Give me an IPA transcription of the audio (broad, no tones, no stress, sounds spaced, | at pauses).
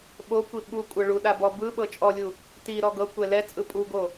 ɓ o kʷ i ɓ u kʷʼ ɤ ɭ u ɗ a b ɔ b ɯ ɓ ɤ t͡ʃʼ ɔ lʲ u | t i ɾ ɔ ɡ ɤ kʷ ɛ l ɛ t͡sʼ ɯ pʼ u ɡ o